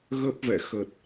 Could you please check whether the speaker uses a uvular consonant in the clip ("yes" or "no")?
no